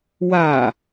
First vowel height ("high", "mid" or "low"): low